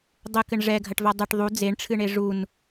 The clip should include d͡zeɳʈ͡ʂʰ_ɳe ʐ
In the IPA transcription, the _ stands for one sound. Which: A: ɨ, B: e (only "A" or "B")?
A